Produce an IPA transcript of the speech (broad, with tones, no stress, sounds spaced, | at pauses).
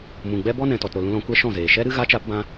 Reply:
m ũ˨ ɡ͡b ɛ˦ b ɔ˦ n ɛ̃˨ t ɔ˨ t ɾ o˨ l ũ˧ l ɔ̃˧ kʷ ɛ˦ ʃ ɔ̃˦˨ z eː˨ ʃ ɛ˦ ɾ ɨ˦ ɣ a˦ t͡ʃ a˦ p b ã˦